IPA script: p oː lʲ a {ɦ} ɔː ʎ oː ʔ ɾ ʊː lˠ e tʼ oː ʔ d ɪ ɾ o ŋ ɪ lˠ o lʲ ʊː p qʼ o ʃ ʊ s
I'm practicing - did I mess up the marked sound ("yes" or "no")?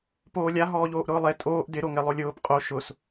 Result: no